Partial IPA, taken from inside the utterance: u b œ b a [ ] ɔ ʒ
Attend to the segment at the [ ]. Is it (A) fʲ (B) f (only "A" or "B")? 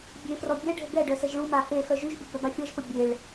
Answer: A